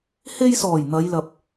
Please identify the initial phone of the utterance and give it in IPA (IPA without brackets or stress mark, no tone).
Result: h